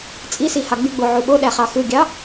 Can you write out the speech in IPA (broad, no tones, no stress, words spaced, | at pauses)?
t͡sʼisihɑ ɡ͡byɡ͡boʕu ɓoɗæχɑ xɯɡʲɑ